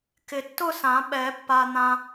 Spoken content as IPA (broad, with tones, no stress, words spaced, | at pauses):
kɪ˨tːʊ˥˧sã˨˩˦ɓɛ˨˩˦ pːa˨ n̪ã˨